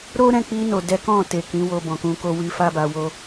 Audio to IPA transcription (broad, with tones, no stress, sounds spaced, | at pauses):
ɾ o˦ ɾ ɛ̃˦˨ k͡p i˧ n o˨ d ɛ˨˦ k ɔ̃˦˨ t e˨ k ĩ˨˦ w o˧ b ɔ̃˨ k ũ˧ k o˧ w i˧ f a˦ b a˧ w o˦